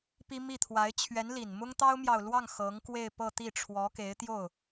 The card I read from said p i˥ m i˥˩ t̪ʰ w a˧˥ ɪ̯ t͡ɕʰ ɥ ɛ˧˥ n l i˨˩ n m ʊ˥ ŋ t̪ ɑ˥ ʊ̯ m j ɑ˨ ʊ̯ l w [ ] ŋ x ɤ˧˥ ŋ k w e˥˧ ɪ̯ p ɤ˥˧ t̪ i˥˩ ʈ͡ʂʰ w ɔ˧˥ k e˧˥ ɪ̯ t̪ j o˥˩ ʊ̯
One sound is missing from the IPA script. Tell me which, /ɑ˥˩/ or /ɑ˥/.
ɑ˥˩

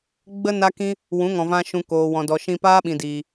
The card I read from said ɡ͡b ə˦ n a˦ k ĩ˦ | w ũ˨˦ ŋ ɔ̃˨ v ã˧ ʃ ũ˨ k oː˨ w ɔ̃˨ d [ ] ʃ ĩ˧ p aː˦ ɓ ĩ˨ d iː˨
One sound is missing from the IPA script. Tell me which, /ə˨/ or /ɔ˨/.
ɔ˨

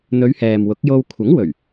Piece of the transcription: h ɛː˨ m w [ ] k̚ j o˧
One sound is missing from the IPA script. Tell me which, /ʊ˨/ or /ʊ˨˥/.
ʊ˨˥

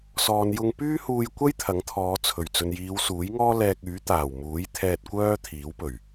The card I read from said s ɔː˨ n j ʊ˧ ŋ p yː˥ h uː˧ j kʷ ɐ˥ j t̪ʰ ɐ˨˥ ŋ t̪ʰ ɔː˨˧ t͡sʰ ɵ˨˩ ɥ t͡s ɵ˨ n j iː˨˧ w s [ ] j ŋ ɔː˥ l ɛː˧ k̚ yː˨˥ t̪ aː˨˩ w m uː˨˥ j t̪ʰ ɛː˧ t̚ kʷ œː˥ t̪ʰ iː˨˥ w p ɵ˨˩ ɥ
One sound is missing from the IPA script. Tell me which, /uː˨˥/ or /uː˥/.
uː˨˥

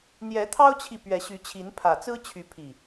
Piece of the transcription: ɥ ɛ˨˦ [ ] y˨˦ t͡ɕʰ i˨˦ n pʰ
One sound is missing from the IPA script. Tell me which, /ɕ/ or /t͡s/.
ɕ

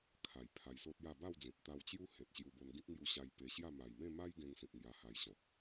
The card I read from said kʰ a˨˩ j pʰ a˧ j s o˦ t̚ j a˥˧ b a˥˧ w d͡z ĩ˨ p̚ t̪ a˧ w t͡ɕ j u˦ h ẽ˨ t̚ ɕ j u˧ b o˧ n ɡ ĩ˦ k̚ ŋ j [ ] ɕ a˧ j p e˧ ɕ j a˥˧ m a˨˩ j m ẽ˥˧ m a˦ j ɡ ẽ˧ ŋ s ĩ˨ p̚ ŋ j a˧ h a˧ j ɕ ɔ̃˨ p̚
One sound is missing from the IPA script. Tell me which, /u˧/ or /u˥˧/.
u˧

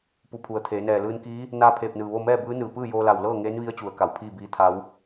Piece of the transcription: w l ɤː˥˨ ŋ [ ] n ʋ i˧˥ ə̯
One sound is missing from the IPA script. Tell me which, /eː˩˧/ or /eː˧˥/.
eː˧˥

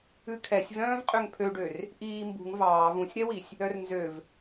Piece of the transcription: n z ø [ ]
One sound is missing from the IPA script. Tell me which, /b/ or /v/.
v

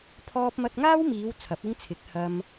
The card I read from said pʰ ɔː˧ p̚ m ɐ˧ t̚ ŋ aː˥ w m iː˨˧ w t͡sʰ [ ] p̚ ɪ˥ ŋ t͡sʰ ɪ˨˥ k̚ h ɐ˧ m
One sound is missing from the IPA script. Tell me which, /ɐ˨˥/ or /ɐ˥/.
ɐ˨˥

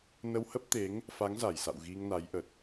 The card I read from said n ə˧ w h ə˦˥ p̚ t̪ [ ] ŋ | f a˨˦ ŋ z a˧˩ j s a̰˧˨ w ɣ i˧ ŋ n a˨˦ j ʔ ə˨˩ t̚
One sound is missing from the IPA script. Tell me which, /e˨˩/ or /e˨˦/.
e˨˦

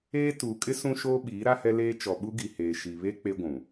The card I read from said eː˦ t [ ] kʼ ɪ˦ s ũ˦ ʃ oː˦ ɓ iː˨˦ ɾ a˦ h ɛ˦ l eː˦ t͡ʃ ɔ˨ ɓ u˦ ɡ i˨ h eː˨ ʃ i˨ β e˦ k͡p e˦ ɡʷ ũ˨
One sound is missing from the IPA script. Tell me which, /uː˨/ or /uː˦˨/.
uː˨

